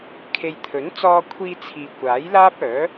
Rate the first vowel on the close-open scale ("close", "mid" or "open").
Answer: mid